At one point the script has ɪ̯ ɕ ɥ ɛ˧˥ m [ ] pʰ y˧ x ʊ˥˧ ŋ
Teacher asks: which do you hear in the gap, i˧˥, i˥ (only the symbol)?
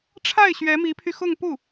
i˧˥